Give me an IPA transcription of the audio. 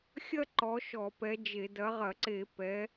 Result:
xʲ ɐ˥ ǃ ɔ˨˦ ʃ ɔ˧˩˧ p ɛ˨˦ d͡ʒ e˧˩˧ d ɐ˨˦ ʁ ɐ˧˩˧ ǀ e˧˩˧ p ɛ˨˦

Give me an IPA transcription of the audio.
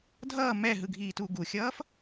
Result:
dʱ ʌː m ɛ ɦ ɯ ɡʱ iː t u ɡ u xʲ ʌː f

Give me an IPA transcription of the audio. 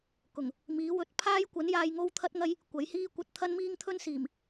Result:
k ʊ˨˩ ŋ | m iː˨˥ w ɵ˨˥ t̚ pʰ aː˥ j kʷ ɐ˨˥ n j aː˧ j ŋ o˥ w t̪ʰ ɐ˥ t̚ ŋ ɐ˥ j | kʷ ɐ˨˥ j h iː˥ kʷ ɐ˧ t̚ t̪ʰ ɐ˥ n m iː˥ ŋ t̪ʰ ɵ˥ n s iː˨˩ m

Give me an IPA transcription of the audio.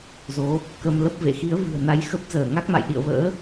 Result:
z o˨˦ | k ə˧ m l ə˦˥ p̚ v ḛ˧˨ x i˨˦ ə̯ v ɨ̤˨˩ ə̯ n a˨˦ j x ə˦˥ p̚ z əː˧˩ ŋ a˦˥ k̚ m a̰˧˨ j ɗ ḭ˧˨ ə̯ v ə̰ː˧˥

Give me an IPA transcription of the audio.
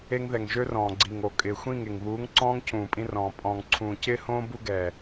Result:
e˦ ŋ ð ɛ˨ ŋ ʒ ø˦ r ɔ̃ː˨ ɡ͡ǀ i˨ ŋ o˨ kʼ ɪː˨ xʷ ĩ˦˨ ŋ e˨ ŋ β uː˨˦ ŋ ǀ ɔ̃ː˦ ŋ cʰ ũː˨ pʼ ĩ˦ r ɔ̃ː˨ pʼ ɔ̃ː˨ ŋ ǀʰ ũː˨ c ɪː˦ h õː˦ b u˦ ɡ ɛ˨

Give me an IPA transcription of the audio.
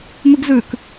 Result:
m ʉ ɡ z ʉ k

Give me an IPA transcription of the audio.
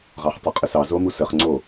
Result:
ʁ ɑ χ tˤ ʊ qʼ ə s ɑ z o m u s ə χ ŋ͡ǀ o

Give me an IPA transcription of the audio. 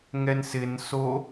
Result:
ŋ ɛ n s ɪ n s o

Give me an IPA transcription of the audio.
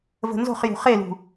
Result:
v ə̤ n z o̤ χ j ṳ χ e l ṳ

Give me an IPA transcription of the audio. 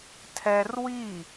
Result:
tʰ ɛ r w i

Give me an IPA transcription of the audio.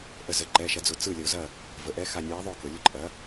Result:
ʔ ə˧˩ z ə˩˧˩ ǃ ɛ˩˧˩ ʃ ɐ˩˥ d͡z ʊ˩˧ t͡s ɯ˥˩ lʲ ə˩˧ ʊ̯ z ɐ˥˩ | v ə˩˧ ʔ ɛ˧˥ x a˧˩ nʲ ɯ˩˥ ɪ̯ ðˤ o˥˩ k ʊ˩˧ lʲ ʊ˧˥ ǃʼ ɐ˩˥

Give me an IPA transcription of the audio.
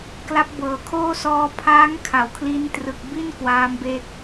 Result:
k l a˦˥ p̚ b ɤː˨˩ kʰ oː˥˩ s ɔː˧ pʰ aː˦˥ ŋ kʰ a˩˦ w kʰ l i˦˥ n t r ɯ˨˩ k̚ b i˥˩ n k w aː˦˥ m b e˦˥ k̚

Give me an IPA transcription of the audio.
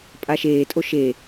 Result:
pʼ a ʃ eː tʼ o ʃ e

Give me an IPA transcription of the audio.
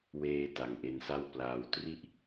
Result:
w eː˧ t a˨˩ ŋ ʔ e˧ n s a˥˩ w p l aː˧ w t r i˥˩ ʔ

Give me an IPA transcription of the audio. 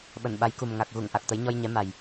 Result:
ɓ ə˧˩ n ɓ a˨˦ j k u˨˩ m ŋ a˨˩ k̚ ɣ u˧˩ ŋ ʔ a˨˩ k̚ t̪ ə˨˦ j ɲ ɔ˧ j ɲ ɛ˨˦ m a˨˩ j

